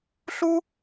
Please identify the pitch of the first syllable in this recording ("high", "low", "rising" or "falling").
high